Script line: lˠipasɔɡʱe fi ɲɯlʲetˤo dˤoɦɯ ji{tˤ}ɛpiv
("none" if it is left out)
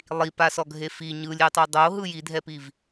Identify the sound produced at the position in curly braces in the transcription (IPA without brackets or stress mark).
dʱ